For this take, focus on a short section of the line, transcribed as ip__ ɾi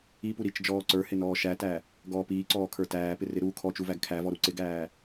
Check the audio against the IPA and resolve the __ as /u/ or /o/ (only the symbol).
u